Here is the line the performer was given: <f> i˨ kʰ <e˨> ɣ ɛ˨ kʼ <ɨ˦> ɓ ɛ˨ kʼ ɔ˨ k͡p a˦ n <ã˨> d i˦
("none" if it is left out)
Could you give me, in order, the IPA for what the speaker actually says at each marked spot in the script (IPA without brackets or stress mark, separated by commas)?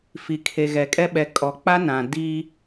f, e˨, ɛ˦, ã˨